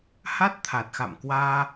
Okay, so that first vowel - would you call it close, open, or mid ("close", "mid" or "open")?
open